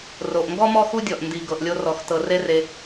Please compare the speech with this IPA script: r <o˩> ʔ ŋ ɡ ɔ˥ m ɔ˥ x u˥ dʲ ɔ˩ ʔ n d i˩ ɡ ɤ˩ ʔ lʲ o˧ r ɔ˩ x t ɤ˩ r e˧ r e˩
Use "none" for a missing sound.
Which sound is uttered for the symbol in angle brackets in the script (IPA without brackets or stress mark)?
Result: o˩